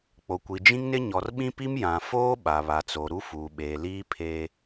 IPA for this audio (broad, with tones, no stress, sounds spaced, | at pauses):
k͡p o˨ kʷ i˨ d͡ʒ ĩ˦ ŋ n ɪ˦ ɲ ɔ˨ r ɓ ĩ˦ p i˦ m j ã˨ f oː˦ ɓ a˨ β a˨ t͡s o˨ ɾ u˦ f uː˨ ɓ eː˨ l iː˦ pʰ e˦